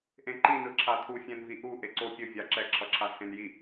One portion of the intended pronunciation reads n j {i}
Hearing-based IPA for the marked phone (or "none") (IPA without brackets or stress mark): i